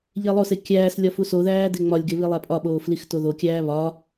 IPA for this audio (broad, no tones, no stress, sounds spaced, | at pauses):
ʎ e lˠ o s e kʲ æː s lʲ ɒ f u s o ð æː d e ŋ͡m ɒ lʲ ɡ e β i lˠ æ pʼ ɒ ɓ oː f l i x t o ð o kʲ æː β ɒ